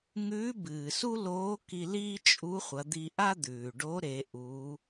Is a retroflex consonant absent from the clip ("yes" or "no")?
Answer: no